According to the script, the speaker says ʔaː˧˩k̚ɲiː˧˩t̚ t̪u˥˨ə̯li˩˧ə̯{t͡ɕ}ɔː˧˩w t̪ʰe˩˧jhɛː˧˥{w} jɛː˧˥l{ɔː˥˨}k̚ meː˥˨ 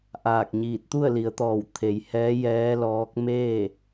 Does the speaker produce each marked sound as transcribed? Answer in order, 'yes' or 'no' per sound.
no, no, no

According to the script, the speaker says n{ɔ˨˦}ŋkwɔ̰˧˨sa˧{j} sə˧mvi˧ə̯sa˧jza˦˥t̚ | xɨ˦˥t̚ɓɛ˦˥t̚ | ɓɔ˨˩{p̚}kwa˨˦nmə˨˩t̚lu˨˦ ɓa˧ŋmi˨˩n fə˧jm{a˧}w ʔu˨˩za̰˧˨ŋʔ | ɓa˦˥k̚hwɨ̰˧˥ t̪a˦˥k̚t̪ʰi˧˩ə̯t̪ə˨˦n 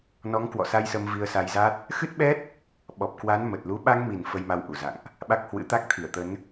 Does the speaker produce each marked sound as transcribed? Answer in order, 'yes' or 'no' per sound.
yes, yes, yes, yes

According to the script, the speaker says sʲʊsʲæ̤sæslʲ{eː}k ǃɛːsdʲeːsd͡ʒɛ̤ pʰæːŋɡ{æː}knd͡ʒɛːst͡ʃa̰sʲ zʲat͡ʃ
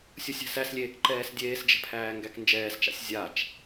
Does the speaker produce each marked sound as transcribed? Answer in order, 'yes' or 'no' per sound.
yes, no

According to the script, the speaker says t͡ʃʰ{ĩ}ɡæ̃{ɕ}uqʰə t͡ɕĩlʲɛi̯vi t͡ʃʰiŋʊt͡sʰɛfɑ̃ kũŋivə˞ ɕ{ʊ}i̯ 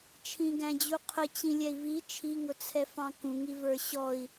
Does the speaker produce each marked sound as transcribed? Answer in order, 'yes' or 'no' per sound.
yes, no, no

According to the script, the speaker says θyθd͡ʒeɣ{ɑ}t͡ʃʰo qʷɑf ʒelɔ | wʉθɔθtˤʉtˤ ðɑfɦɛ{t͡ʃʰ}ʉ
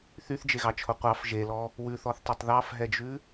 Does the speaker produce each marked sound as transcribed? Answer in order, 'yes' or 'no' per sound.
yes, no

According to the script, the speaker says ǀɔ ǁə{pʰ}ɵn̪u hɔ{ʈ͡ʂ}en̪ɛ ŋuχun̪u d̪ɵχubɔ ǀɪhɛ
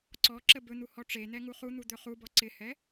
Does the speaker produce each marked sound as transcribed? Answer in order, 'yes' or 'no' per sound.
no, yes

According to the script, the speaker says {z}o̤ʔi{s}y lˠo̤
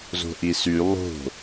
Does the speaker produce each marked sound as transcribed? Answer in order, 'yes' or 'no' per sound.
yes, yes

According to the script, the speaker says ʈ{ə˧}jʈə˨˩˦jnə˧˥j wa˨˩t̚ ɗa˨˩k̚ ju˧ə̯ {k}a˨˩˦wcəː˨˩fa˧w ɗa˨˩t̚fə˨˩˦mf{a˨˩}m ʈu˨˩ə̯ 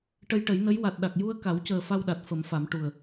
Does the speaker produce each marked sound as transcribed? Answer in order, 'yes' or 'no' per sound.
yes, yes, no

